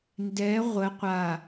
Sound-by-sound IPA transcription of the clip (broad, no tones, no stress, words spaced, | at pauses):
ndɛ ʁʷə qʷa